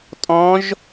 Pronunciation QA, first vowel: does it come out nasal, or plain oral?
nasal